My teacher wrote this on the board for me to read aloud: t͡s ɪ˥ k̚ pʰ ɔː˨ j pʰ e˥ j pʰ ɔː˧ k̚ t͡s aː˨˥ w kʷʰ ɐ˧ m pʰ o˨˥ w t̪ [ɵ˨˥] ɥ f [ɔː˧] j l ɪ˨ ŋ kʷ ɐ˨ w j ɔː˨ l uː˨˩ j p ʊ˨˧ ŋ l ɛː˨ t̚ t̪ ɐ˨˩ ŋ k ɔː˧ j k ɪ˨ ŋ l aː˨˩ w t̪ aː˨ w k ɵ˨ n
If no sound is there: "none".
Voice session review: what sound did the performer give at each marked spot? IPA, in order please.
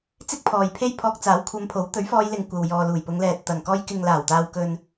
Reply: ɵ˨˥, ɔː˧

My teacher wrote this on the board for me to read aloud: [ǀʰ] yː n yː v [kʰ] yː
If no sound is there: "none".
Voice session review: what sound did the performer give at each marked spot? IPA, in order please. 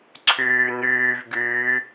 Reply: ǀʰ, ɡ

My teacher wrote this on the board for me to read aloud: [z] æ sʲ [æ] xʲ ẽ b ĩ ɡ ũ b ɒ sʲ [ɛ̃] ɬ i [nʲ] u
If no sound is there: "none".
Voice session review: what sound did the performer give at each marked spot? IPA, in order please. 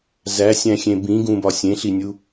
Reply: z, æ̃, ẽ, nʲ

